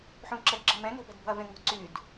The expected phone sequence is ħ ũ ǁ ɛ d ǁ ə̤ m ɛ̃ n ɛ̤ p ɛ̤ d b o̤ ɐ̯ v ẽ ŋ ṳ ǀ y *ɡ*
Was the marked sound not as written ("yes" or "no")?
yes